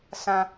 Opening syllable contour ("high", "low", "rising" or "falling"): low